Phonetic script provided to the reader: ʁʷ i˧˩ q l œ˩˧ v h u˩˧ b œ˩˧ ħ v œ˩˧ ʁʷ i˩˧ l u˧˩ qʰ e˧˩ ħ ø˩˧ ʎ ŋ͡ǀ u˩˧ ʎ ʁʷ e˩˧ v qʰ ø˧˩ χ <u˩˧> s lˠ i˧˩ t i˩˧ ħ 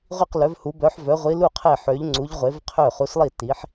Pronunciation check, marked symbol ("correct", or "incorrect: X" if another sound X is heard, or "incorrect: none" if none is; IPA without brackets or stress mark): correct